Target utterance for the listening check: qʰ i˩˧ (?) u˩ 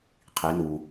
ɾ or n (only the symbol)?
n